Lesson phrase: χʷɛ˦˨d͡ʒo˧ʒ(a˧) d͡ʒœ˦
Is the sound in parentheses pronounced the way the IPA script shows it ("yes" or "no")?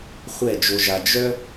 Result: yes